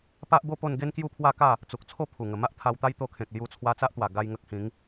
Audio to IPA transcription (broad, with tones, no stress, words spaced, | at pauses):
pa˦ʔbo˥˧po˥˧n ɡe˦nkju˥˧pʰwa˥˧ka˥˧ | t͡su˨k̚t͡sʰo˥˧ pʰu˨˩ ŋə˨˩ma˦ʔt̪ʰa˧wt̪a˦j t̪o˧kʰẽ˨k̚ lju˧t͡sʰwa˧t͡sa˦ʔt̪wa˨˩ ɡa˦jŋə˦k̚ hĩ˨˦ŋ